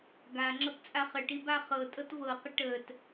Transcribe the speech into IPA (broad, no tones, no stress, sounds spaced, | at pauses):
ɡ a ŋ͡ǁ ɤ p t͡sʼ a χ ə ʈ i b a χ ɤ tʼ ɤ t v ɤ q ə ʈ ə t